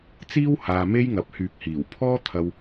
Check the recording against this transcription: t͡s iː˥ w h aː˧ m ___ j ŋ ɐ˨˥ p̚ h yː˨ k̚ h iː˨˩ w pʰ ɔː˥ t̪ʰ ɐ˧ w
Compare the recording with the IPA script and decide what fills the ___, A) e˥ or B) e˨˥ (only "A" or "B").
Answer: A